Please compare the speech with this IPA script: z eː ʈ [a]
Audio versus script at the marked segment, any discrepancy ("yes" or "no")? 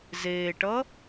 yes